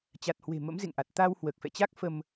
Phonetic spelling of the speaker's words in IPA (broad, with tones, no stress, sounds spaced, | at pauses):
t͡ɕ a˨˩ t̚ h w e̤˨˩ m ə̰˧˥ m z ḛ˧˨ ŋ ʔ a˨˩ t̚ t̪ a˧ w h w əː˨˩ k̚ f ɛ̰˧˨ t͡ɕ a˦˥ k̚ f ə˧ m